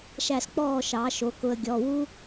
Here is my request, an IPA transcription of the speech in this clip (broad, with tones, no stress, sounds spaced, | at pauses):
ʃ æ˥˨ s k͡p ɔː˥˨ ʃ ɑ˩˧ ʃ o˩˧ k ʊ˧ ə̯ ɡʲ ɔ˩˧˩ w u˥